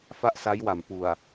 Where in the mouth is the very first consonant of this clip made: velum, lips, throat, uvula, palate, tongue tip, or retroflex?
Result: lips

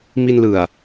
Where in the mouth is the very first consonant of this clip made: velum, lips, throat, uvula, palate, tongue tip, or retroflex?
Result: lips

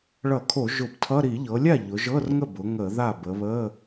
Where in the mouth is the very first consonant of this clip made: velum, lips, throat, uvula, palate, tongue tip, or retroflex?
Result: retroflex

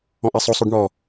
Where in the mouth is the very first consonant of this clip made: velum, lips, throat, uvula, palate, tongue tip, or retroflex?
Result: throat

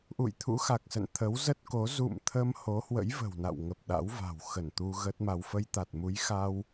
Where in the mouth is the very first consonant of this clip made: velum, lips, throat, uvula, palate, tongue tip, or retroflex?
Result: throat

